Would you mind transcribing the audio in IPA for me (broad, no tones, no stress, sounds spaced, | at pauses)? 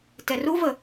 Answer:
t ɛ r u v ə